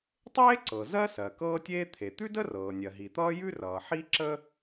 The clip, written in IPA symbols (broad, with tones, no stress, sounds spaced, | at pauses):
tˤ eː˥ ǀ ɤ˩ z ɜ˥ s ɜ˩ k ɤː˥ tʲ eː˥ t̪ʰ e˩ t̪ ʉ˥ d ə˥ r ɤː˩ nʲ ɜ˩ ɦ i˩ t̪ ʌː˥ j ʉ˥ r ʌː˩ ħ i˥ ǁ ə˥